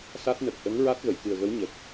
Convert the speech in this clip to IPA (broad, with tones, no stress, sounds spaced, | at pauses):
s a˦˥ t̚ n ə˨˩ k̚ ʔ ə˧˥ ŋ ɹ a˦˥ t̚ ɣ ə˨˩˨ j k ɨ˨˩ ə̯ ɣ ə˧˥ w ɲ ə˨˩ k̚